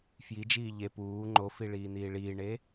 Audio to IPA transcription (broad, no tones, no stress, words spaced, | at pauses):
fjid͡ʒiː ʎe puː ŋ͡ǃofiɭiːn̪iː ɭiːɳe